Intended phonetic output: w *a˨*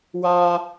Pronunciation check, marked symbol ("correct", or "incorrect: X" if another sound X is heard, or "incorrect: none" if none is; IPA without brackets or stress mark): incorrect: a˦